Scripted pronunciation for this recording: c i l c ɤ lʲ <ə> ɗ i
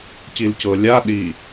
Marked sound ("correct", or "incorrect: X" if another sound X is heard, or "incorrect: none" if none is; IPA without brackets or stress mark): incorrect: a